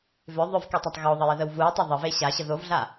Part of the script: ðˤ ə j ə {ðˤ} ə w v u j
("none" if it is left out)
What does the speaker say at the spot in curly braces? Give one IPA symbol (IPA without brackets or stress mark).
ð